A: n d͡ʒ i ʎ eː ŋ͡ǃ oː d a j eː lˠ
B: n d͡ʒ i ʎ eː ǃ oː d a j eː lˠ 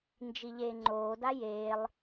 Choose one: A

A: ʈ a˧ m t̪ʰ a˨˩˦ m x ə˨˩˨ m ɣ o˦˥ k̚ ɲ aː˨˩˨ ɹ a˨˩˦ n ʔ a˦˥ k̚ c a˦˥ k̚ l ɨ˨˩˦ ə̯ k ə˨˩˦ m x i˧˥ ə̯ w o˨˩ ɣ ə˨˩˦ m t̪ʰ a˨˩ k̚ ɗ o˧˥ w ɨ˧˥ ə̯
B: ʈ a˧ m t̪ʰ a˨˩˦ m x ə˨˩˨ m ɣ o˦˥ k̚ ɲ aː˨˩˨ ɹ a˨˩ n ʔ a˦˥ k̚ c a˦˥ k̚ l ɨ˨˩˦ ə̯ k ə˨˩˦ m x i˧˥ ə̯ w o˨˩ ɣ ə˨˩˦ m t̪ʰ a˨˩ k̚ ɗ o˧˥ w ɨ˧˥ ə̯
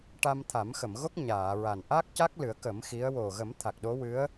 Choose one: B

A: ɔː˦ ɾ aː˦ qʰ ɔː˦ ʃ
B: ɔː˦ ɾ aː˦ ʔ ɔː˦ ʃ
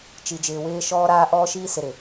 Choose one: B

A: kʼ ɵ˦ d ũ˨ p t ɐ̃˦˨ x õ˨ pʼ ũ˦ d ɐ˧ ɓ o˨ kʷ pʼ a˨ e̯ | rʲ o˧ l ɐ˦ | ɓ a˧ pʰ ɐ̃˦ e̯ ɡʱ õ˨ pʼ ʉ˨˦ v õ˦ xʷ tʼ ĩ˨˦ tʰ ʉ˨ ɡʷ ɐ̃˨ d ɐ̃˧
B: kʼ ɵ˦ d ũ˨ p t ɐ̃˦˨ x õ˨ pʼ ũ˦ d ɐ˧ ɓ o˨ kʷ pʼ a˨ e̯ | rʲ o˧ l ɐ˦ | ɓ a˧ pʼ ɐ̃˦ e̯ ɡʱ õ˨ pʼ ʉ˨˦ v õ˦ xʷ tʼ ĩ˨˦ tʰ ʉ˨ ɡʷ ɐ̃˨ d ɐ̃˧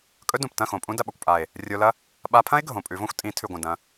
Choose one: A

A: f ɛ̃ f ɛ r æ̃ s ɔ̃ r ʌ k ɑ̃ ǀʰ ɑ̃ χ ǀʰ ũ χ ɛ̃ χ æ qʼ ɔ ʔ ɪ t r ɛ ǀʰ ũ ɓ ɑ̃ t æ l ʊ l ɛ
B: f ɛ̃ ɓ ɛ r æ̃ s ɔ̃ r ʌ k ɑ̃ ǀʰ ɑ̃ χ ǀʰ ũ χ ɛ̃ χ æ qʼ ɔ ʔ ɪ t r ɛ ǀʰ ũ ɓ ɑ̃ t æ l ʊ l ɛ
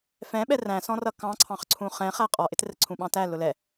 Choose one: B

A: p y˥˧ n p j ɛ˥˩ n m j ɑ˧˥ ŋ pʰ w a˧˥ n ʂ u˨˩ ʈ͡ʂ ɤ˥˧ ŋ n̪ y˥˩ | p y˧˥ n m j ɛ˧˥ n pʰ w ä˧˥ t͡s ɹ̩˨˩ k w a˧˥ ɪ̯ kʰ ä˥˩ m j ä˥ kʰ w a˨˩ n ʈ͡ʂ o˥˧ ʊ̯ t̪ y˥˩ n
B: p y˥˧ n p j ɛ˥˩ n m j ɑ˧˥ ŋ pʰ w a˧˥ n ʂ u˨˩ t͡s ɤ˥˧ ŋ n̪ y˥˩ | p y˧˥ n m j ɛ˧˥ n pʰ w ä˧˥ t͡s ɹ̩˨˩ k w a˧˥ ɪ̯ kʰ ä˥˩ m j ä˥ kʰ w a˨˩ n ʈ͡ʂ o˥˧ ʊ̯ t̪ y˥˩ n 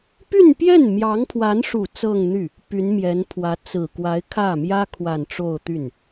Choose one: B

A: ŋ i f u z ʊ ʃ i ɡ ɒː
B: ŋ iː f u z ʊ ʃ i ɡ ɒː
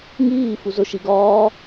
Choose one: B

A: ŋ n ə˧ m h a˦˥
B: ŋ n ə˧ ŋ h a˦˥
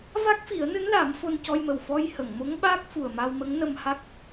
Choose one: A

